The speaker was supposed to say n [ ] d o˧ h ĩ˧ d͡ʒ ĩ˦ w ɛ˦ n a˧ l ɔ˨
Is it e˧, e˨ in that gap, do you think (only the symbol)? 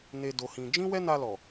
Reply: e˧